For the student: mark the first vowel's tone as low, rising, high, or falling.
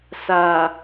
low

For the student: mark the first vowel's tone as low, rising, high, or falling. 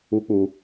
high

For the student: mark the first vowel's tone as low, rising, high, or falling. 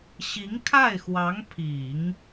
rising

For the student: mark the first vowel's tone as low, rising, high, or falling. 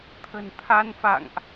low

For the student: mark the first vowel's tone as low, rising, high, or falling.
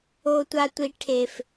high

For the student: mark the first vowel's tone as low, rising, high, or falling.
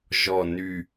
falling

